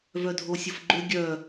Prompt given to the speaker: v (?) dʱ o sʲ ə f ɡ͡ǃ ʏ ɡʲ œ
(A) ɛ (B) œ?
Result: B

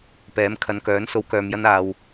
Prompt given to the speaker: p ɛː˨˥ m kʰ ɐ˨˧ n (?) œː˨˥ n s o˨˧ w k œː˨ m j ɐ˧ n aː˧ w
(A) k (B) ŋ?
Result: A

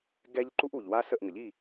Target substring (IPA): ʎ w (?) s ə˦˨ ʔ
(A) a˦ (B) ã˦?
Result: A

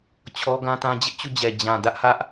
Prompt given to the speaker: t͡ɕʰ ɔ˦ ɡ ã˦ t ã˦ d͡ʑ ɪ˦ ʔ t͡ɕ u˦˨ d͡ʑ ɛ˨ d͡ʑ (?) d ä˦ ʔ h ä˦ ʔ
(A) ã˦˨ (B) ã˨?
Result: B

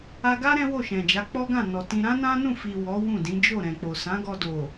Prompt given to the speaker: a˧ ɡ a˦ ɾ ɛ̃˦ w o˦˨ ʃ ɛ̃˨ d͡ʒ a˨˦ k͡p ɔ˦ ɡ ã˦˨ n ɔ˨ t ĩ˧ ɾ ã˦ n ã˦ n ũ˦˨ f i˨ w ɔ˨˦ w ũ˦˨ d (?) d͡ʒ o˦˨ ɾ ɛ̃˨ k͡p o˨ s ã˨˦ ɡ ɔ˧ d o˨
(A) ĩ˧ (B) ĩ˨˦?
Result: B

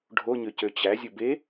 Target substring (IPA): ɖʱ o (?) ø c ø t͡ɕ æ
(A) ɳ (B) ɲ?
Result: B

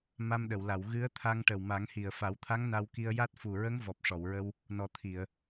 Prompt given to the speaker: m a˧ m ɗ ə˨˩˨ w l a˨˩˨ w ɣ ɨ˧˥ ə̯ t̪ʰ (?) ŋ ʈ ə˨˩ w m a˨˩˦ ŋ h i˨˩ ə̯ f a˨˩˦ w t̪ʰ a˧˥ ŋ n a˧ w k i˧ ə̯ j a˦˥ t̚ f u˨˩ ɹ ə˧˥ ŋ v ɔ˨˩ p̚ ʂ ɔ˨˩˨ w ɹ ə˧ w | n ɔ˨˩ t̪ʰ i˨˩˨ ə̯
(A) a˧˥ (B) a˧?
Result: B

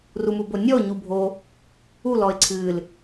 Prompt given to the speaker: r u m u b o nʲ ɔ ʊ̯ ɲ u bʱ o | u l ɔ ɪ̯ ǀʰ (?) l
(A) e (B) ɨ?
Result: B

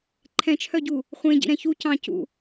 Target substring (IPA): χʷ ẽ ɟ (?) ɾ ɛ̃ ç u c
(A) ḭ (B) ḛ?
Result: A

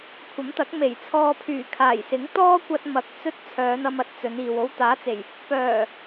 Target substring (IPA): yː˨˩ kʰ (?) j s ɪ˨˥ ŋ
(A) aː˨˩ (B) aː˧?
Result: A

